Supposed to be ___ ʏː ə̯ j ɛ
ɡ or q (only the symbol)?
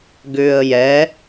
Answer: ɡ